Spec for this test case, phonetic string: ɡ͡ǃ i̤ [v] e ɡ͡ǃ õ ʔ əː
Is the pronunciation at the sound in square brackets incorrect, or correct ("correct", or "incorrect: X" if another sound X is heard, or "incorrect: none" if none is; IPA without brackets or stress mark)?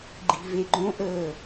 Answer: correct